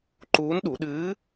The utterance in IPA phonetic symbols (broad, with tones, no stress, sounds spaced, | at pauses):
ǃ uː˧˥ n ɗ u˩˧ ɗ ɨː˧˥